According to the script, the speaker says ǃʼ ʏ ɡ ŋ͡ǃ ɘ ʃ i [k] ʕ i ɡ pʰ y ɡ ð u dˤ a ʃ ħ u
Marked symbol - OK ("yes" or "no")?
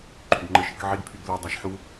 yes